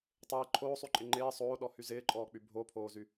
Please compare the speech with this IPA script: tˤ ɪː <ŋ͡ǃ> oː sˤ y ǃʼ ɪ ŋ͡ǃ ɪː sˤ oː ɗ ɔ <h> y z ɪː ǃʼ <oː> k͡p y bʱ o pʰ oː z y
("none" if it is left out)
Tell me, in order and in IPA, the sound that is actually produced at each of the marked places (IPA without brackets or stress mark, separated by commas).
ǃʰ, h, ɔː